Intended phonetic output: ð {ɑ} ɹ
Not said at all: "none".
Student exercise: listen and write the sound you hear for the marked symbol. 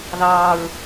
ɑː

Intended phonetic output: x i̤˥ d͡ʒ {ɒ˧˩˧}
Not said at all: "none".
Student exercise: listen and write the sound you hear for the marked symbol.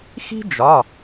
ɒ˩˧˩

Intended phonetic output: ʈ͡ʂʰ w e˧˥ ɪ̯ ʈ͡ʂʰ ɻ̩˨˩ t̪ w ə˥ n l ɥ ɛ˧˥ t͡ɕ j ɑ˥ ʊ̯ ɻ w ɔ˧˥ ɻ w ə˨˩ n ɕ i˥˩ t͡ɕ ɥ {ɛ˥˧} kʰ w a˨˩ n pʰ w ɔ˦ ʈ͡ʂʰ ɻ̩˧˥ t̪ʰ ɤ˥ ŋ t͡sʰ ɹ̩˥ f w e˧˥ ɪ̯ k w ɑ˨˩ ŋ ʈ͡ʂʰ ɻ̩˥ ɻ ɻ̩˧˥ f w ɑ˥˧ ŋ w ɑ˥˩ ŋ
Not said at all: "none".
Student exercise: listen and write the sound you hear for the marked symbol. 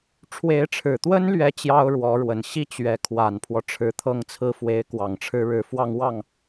ɛ˧˥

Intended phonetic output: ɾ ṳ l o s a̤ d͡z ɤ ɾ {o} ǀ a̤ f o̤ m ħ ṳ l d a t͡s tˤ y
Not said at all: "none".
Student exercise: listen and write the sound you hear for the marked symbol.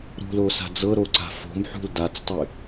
o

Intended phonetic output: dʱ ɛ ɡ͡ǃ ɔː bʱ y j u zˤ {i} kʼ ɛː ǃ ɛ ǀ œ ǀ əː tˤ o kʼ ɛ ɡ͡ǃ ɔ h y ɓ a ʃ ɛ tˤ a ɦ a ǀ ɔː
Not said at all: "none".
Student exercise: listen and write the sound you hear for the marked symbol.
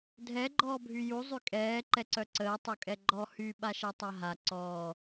y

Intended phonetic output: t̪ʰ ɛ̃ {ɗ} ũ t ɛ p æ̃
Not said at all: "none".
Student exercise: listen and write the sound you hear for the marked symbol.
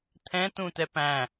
t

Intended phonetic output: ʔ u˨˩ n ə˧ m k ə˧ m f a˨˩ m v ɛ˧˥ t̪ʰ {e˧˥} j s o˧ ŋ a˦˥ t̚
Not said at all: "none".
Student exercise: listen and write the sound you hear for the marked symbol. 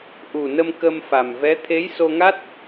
e˧˥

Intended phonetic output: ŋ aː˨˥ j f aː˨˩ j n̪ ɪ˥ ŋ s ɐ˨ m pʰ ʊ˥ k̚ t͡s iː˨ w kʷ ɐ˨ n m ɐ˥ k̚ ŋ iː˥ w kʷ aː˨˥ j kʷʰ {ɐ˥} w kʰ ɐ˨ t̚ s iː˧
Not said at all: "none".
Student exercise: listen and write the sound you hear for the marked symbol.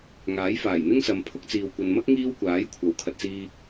ɐ˨˥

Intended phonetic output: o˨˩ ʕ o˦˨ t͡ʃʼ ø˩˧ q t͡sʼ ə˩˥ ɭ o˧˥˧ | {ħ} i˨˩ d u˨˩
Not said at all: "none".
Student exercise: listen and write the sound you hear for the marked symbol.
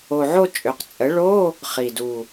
χ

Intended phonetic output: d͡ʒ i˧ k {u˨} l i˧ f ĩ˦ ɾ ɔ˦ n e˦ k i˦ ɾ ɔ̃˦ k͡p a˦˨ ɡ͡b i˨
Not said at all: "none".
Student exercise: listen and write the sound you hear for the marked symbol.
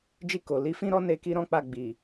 o˨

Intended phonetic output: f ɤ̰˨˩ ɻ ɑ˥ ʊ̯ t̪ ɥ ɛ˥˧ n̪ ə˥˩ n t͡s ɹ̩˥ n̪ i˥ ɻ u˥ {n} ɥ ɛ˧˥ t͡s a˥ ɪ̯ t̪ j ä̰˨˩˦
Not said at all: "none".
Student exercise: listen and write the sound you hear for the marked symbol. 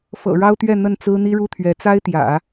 t̪ʰ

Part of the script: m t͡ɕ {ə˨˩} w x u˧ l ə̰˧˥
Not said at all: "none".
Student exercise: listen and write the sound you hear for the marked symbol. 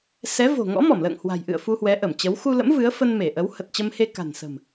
ə˨˦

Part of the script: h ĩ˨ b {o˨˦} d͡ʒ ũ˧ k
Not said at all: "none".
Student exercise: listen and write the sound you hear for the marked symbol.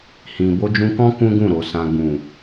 o˧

